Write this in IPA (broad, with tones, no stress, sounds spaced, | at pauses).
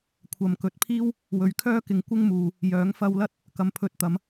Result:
kʷʰ ɐ˨ m k ɵ˨˥ t̚ pʰ iː˥ w | w ɵ˨˥ ɥ kʰ œː˥ k ɪ˨˧ ŋ kʷ ɪ˥ ŋ m uː˨ | j œː˨˥ ŋ f ɐ˧ w l ɐ˥ t̚ | k ɐ˨ m pʰ ɵ˧ t̚ t̪ ɐ˨˧ m